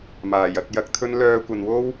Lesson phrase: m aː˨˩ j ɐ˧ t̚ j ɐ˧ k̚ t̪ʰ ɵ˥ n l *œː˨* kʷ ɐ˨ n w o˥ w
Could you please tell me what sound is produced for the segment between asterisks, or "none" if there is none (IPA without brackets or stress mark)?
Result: œː˧